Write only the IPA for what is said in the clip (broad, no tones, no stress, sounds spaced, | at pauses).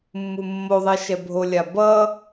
mː u mː o ðˤ ɛ ʃ ɛ bʱ o lʲ a b ʌ